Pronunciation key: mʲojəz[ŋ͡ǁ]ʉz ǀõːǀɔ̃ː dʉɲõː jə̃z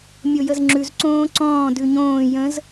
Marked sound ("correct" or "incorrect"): correct